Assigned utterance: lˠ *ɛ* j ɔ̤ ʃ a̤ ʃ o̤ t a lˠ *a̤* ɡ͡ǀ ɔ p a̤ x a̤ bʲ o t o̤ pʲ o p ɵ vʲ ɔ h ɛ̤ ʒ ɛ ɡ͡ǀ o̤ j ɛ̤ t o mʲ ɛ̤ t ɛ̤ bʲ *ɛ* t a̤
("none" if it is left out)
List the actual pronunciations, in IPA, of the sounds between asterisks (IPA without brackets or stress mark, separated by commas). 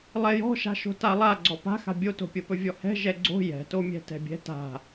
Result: ɛ, a, ɛ̤